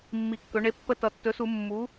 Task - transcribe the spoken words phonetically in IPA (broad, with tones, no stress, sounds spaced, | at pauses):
mː i˨˩ kː ɵ˩˧ ɳ e˩˥ pː ə˧ t ʌ˩˧ tː ɵ˩˥ s u˧˩˧ mː u˩˥